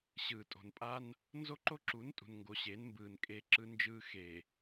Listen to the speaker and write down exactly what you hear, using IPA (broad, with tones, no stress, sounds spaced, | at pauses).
ɕ ɯː˨ tʼ o̤˨ n pʼ a˦ n | n z o˦ ǃ o˦ ǁ u˨˦ n tʼ ṳ˨ n ŋ ɡ o˨ ɕ eː˨˦ n m b ɯː˨ n kʼ e˦ ǁ ɯ˦ n d͡ʒ ɯː˦ x e˨